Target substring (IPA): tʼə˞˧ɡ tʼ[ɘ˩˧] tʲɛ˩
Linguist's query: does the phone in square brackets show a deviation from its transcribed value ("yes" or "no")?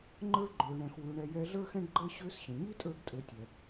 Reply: no